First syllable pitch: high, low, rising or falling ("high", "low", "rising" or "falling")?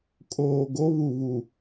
low